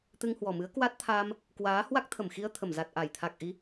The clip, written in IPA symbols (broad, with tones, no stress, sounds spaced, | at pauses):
t̪ ɨ˧ ŋ h w ɔ˨˩ m ɨ˨˦ ə̯ k w a˦˥ t̚ t̪ʰ aː˧ m | k w aː˨˦ h w a˦˥ k̚ t̪ʰ ə˧˩ m x i˧ ə̯ t̪ʰ ə˧˩ m z a˨˩ t̚ ʔ a˧˩ j t̪ʰ a˨˩ k̚ ʔ i˨˦